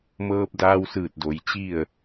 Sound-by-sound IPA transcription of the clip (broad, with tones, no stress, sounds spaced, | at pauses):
m ɤː˧ p̚ d aː˧ w s ɯː˧˩ t̚ d o˩ j t͡ɕ i˥˨ ə̯